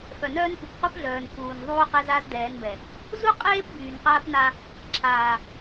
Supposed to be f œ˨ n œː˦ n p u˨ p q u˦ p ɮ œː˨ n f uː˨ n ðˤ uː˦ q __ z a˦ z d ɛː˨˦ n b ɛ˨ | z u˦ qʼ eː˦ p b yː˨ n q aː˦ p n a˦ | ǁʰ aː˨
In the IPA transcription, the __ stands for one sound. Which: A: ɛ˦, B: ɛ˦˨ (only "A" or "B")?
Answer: A